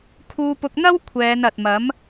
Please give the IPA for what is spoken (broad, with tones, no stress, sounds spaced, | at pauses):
kʰ uː˧ p ʊ˧ k̚ n̪ ɐ˥ w kʷʰ ɛː˨˧ n ɐ˨ t̚ m ɐ˨˥ m